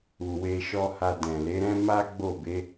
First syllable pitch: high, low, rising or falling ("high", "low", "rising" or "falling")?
low